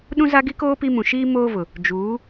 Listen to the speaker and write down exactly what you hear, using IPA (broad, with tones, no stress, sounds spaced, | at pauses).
ɗ ũ˦ z a˦ ɡ i˦ k oː˦ p i˦ m ũ˨ ʃ iː˦ m oː˦ v ʊ˨ | d͡ʒ uː˨˦